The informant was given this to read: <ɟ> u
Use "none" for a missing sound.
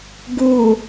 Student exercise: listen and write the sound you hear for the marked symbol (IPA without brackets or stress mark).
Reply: ɡ